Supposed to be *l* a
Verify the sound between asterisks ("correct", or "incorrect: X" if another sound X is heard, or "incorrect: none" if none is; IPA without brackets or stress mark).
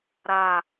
incorrect: ɾ